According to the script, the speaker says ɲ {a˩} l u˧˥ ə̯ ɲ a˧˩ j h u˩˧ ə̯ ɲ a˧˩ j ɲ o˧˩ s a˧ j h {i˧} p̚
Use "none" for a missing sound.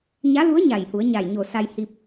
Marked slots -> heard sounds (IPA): a˧˥, i˧

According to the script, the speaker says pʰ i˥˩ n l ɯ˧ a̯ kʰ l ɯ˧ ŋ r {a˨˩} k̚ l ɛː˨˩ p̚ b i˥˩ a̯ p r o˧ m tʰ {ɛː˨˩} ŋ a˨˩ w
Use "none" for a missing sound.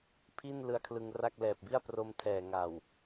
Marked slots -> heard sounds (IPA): a˥˩, ɛː˨˩

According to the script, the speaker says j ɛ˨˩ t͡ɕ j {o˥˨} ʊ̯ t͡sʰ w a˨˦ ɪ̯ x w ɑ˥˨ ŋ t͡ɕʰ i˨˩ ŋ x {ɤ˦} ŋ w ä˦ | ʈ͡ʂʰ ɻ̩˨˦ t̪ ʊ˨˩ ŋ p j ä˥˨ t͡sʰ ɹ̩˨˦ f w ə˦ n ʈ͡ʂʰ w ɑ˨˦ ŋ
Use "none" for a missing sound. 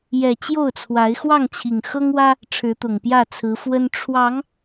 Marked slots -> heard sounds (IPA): o˥˨, ɤ˦

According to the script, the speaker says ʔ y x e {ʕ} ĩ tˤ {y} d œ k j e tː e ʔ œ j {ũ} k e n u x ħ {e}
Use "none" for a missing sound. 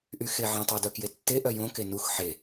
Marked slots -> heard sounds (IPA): ʕ, y, õ, e

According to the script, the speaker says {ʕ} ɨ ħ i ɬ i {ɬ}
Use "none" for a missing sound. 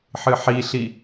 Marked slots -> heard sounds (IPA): ħ, none

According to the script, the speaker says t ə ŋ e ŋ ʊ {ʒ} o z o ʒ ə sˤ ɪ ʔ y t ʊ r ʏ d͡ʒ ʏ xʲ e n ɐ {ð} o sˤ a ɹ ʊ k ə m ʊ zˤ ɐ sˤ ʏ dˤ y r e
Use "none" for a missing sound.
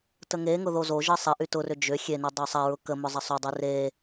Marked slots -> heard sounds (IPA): ð, dˤ

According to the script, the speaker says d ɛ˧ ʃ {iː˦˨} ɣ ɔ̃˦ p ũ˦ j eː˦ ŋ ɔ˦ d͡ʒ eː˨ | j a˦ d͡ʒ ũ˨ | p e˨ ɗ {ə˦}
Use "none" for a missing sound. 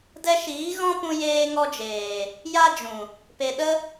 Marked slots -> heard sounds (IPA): iː˨˦, ə˦

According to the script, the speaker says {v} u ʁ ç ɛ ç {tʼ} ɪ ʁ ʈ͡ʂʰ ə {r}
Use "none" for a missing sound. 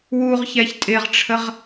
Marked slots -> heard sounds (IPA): w, tʼ, ʁ

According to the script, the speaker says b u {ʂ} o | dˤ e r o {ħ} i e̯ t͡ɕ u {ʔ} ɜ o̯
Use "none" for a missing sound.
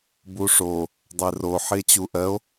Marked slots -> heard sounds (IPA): ʂ, ħ, ʔ

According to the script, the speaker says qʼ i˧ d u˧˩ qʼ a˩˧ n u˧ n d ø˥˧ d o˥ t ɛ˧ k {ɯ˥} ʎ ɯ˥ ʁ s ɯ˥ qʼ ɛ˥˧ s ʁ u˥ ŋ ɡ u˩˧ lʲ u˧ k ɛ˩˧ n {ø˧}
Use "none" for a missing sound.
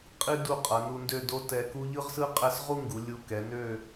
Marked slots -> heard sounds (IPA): u˥, ø˥˧

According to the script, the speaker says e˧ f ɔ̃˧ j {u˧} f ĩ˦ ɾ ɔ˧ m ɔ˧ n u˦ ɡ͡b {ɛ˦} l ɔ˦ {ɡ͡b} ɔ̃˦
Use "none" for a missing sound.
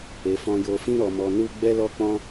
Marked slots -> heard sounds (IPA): o˧, ɛ˦, k͡p

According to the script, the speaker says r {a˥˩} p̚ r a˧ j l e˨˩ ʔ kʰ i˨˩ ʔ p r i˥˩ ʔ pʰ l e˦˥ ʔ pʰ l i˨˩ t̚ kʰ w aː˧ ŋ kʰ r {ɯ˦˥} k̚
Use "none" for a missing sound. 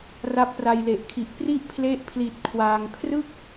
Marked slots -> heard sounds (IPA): a˦˥, ɯ˥˩

